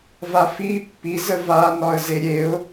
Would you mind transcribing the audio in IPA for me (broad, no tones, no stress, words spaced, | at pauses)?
vafi pːi zəva nɒə̯zeɾʲeʊ̯